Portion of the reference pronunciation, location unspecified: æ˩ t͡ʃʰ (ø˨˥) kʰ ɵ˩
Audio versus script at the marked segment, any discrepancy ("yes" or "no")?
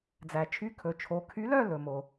yes